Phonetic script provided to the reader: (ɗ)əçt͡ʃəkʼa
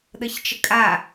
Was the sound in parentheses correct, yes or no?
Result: yes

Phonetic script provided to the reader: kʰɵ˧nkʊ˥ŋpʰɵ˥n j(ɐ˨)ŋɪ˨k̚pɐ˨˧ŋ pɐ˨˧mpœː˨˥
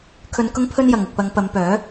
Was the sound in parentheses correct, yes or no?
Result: yes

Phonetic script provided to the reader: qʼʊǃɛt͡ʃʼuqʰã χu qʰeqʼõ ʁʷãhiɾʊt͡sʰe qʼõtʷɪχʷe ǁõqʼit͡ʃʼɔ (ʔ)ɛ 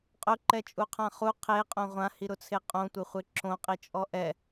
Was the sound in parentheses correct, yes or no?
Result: yes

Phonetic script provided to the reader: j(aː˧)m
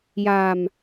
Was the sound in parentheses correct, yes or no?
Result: yes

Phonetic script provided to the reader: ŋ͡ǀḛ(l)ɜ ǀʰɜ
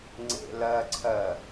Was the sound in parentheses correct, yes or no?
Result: yes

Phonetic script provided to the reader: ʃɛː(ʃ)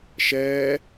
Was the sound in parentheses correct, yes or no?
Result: no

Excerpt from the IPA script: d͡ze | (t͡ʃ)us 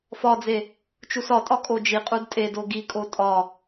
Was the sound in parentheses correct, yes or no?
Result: yes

